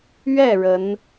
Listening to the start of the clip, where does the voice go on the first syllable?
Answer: falling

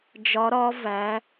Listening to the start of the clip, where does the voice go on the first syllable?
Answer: rising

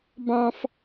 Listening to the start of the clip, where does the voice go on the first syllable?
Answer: high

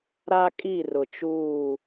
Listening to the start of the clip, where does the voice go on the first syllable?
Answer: high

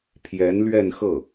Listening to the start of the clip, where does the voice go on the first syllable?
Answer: rising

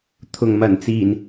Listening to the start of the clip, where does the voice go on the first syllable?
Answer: low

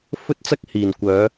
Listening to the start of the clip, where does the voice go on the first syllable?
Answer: high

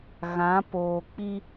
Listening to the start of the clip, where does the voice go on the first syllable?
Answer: rising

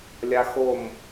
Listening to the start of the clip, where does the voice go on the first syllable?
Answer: high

